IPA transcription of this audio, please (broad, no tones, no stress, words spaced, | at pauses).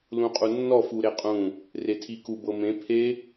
lũqʼunːɔ fuɾeqʼũ | retʰiku bɤmẽ pʰe